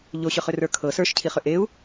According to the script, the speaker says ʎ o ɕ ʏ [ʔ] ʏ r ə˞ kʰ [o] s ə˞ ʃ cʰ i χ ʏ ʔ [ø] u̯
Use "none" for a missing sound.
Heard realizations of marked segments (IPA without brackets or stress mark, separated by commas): χ, ɤ, e